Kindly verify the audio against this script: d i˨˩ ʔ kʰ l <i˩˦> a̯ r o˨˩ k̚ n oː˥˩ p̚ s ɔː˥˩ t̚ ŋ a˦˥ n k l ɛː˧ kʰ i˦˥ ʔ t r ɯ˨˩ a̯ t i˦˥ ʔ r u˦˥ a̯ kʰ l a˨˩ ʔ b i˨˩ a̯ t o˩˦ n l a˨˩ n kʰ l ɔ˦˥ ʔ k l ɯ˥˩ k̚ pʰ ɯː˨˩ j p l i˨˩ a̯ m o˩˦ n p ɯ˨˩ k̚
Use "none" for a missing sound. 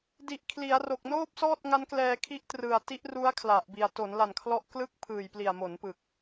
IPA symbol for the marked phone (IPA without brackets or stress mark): i˩˦